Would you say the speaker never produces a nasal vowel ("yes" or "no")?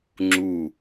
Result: yes